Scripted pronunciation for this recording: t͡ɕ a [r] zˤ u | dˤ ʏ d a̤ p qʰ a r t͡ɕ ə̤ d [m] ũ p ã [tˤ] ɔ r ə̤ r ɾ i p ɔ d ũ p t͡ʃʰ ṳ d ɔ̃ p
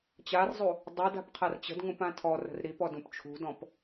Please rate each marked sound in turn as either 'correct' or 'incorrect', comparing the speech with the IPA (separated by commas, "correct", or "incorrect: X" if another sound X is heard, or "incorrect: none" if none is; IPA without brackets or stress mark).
correct, incorrect: ŋ, incorrect: tʰ